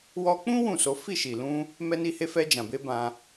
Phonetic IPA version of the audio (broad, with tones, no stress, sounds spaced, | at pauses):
w ɔ˧ k͡p ũ˦ w ũ˦˨ s o˨˦ f i˦˨ ʃ i˨ l ũ˧ | m ɛ˧ n i˧ h e˧ f ɛ˧ d͡ʒ ã˨ b e˨˦ b ã˧